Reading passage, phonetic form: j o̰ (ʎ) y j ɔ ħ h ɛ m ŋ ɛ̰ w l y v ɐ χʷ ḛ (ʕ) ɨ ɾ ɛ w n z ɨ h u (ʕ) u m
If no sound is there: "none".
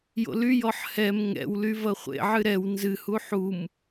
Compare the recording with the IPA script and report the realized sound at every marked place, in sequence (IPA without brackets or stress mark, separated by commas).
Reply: l, ʕ, ħ